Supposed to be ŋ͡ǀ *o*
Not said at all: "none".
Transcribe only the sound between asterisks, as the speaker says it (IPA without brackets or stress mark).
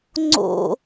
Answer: o̰